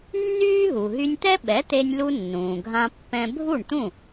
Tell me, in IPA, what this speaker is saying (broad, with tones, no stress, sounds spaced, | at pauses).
nː yː˥ ɦ u˩ ɦ y˧ nʲ t̪ ɛ˥ ɓ ɛ˩˥ t̪ e˧ nʲ l u˧ nː ũː˩ ɡʱ ã˧ pː ɛ̃˧ bʱ u˥˩ ɳ t̪ ũ˥˩